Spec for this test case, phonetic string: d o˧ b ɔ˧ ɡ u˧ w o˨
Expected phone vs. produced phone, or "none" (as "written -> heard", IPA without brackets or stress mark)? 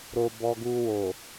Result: d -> ɾ